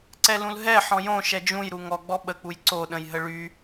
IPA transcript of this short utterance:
ǀ ɛ l ũ l ɦ ɛ ħ ɔ̃ j õ ʃ ɛ d͡ʒ ũ j ɾ u ŋ ɔ ɡ͡b ɔ ɓ ə k͡p u j ǀ o ɗ ə̃ j ɦ ə ɭ y

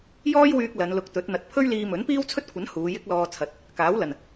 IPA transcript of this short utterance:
j ɔː˥ j w yː˧ k̚ l ɐ˨˧ n l ʊ˧ k̚ t̪ ɵ˨˥ t̚ n̪ ɐ˧ t̚ pʰ ɵ˥ ɥ l iː˧ m ɵ˨˥ n p iː˥ w t͡sʰ ɵ˥ t̚ kʷʰ ɐ˨˥ n h uː˨˧ j ɪ˥ k̚ l ɔː˧ t͡sʰ ɐ˨˥ t̚ | k aː˨˥ w l ɐ˨˩ n

